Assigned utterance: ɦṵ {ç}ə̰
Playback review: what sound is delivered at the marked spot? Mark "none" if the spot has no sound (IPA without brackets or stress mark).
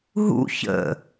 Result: ç